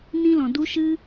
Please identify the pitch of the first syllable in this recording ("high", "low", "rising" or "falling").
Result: high